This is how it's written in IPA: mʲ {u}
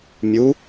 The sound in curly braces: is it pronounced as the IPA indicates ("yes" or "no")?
yes